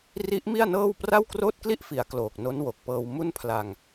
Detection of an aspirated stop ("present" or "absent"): present